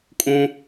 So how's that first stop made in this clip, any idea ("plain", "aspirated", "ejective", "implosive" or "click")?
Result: ejective